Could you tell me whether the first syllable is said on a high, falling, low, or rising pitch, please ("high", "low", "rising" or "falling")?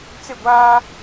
falling